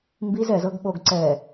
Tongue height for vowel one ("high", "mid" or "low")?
high